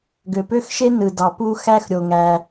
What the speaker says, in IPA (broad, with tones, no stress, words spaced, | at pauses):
ɡø˨pø˥xʃe˥ nɯ˨dɑ˨pu˥ xæ˥xɾʲo˨ŋæ˨